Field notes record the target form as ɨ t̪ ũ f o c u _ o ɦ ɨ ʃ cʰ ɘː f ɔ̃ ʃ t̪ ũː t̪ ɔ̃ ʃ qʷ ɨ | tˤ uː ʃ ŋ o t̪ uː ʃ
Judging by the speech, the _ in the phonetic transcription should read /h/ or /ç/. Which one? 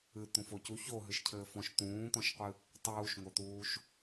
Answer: ç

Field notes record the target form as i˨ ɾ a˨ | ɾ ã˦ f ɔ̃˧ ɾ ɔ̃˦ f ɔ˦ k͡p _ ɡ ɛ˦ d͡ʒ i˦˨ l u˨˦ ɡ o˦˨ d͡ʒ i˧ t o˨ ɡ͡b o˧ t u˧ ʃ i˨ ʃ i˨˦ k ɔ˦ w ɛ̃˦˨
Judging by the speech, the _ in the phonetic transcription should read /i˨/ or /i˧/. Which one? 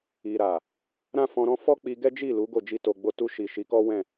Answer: i˧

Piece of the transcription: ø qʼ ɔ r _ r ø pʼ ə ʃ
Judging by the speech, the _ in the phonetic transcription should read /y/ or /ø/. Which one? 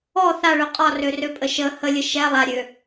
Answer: ø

